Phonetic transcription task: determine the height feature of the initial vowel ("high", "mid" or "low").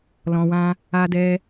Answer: mid